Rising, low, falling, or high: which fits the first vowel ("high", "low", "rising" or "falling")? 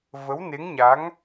rising